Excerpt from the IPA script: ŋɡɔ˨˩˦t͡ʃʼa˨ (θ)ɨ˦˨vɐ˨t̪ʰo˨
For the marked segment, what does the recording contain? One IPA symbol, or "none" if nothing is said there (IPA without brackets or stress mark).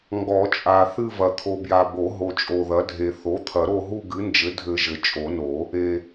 θ